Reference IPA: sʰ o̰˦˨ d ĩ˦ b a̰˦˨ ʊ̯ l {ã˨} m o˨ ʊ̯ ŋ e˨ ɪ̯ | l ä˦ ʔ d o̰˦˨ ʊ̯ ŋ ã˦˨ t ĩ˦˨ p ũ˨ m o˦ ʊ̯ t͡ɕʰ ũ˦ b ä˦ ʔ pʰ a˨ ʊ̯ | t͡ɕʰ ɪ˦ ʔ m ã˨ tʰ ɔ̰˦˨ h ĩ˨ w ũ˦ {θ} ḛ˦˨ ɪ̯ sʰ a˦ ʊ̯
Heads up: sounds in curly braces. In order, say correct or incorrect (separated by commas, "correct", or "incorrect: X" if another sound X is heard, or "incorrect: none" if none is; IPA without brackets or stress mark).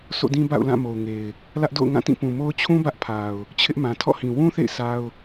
incorrect: ã˦˨, correct